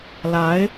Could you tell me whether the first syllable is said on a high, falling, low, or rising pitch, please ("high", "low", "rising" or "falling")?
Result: rising